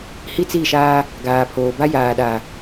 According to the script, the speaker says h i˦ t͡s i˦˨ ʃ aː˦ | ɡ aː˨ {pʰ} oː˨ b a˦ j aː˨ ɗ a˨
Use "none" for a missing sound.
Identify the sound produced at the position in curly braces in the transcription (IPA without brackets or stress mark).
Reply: pʰ